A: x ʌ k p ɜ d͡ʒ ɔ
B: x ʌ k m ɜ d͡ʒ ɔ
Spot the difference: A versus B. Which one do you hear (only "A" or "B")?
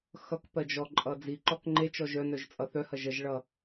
A